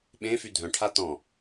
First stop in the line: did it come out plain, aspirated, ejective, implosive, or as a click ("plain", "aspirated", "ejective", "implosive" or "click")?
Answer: implosive